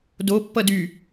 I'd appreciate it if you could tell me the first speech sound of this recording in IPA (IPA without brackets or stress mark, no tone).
d